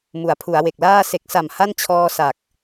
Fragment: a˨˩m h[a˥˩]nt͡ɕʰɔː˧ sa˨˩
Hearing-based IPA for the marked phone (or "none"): a˥˩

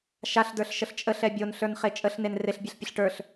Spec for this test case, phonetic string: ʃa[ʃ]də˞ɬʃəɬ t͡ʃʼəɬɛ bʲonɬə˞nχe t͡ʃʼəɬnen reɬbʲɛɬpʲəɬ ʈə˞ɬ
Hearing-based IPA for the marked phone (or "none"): ɬ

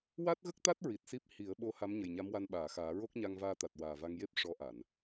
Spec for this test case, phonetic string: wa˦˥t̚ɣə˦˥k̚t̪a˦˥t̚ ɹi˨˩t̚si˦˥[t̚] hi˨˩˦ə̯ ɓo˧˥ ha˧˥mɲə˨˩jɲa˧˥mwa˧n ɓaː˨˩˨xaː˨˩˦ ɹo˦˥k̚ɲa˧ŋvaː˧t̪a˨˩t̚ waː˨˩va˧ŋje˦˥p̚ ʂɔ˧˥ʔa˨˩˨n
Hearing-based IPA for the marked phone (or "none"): p̚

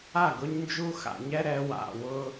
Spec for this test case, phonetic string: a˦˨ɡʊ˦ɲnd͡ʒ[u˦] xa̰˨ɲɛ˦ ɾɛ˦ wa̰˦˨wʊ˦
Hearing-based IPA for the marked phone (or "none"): u˦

